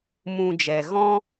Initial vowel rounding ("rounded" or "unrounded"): rounded